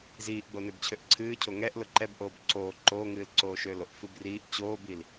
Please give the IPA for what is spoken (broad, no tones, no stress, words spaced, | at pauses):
ziːʔɡ͡bo nøbt͡ɕʰøʔǀʰɨːcʰo ŋɛʔ lʊǃɛbʔoːb ǀoː ǃoːŋɨːl ǀoːʃøloʔfɨb riːʔ t͡ɕoːbil